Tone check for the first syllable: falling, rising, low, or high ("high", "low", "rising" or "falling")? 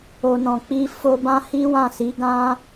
low